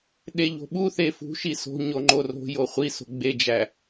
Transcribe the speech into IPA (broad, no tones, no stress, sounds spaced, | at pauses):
ɗ e ʎ o̤ ɓ u θ e f ṳ ʃ i s o̤ ɲ o ŋ͡ǃ o r o̤ j o χʷ i s o̤ ɡ͡b e d͡ʒ æ